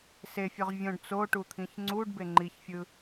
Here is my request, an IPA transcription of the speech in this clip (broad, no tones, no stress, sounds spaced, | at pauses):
s e fʲ ø ʁ vʲ õ ɖ t͡s o ʈ u t̪ʰ ĩ ç ŋ͡ǀ u ɖ b e ŋ͡ǃ i ç fʲ ɯ